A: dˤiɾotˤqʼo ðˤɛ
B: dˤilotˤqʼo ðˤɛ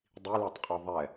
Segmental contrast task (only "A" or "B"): B